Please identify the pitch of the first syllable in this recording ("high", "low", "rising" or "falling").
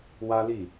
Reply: high